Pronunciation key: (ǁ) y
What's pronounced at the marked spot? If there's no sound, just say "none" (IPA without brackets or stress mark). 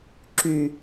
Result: ǁ